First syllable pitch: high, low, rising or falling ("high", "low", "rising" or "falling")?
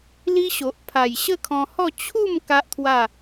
high